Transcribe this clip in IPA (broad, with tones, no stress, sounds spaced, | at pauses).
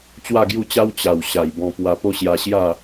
t͡ɕ w a˥˧ ɡ j u˥˧ t͡ɕ a˦ w t͡ɕ a˨˩ w ɕ a˨˩ j b ɔ̃˧ p w a˧ p o˦ ɕ j a˧ ɕ j a˥˧